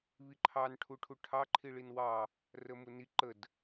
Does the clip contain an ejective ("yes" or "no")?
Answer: no